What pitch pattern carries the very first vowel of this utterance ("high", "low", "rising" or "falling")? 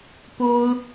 high